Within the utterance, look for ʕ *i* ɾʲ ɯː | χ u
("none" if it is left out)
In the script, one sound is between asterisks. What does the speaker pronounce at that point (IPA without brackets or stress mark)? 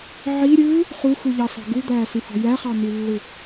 i